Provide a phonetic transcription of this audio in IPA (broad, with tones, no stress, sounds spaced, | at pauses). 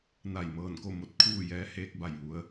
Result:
n a˧˩ j m ɤː˧˩ n k o˥˨ m o˧ t̚ kʰ uː˥˨ j ɛː˧˥ h eː˧ k̚ b a˧˩ j ʋ u˩˧ ə̯